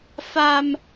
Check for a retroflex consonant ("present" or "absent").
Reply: absent